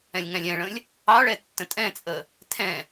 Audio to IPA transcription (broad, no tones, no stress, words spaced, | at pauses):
ɛ̃lʲŋæ̃lʲɛ̃ɭə̃lʲ | ɑɭɛ tːə̃tʼɛ̃t͡sʼə | tʰɛ̃